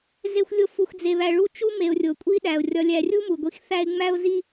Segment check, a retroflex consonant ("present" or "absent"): present